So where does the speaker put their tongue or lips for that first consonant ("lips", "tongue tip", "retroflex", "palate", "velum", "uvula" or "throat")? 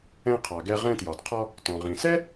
uvula